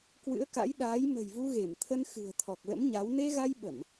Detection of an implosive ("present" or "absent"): present